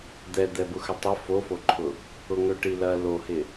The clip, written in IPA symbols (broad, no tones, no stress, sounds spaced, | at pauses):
d̪ ɛ d̪ ɛ b ʊ x ə tˤ ə f o f o ǃʰ ʊ | ʊ ŋ ø ʈ i l ɐ l o h ɪ